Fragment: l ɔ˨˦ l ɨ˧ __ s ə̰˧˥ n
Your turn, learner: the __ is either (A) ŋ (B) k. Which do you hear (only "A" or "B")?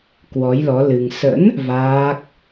A